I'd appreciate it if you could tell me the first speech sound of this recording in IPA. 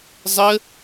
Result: zˤ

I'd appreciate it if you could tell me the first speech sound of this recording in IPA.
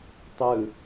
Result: tˤ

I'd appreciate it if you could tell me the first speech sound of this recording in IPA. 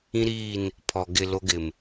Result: ĩ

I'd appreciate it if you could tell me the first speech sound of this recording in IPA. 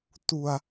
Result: t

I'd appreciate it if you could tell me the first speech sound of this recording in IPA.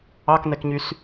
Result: ɑ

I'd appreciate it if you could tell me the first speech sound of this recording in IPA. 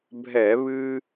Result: bʱ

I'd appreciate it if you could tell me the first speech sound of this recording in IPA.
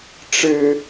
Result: ʈ͡ʂ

